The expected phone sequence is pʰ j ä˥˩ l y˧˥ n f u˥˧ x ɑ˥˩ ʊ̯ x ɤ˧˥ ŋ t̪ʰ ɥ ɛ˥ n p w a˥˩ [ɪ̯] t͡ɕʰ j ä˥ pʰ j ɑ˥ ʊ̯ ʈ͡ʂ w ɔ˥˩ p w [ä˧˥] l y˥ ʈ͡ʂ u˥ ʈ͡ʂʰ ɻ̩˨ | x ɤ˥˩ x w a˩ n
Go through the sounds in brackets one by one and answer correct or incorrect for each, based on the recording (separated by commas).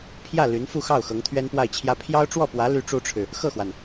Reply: correct, correct